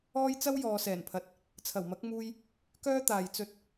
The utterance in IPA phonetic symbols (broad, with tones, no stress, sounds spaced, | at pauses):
ɔː˥ j t͡s ɐ˥ w j ɔː˨˧ s ɛː˨˩ n pʰ ɐ˨˥ t̚ | t͡sʰ ɐ˨˩ w m ɐ˨˥ k̚ m uː˧ j | k œː˥ t̪ aː˨ j t͡s ɵ˥ t̚